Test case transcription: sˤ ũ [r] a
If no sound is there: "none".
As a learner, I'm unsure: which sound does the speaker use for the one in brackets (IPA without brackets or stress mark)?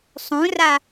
r